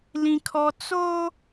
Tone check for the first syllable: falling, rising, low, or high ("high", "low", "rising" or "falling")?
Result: high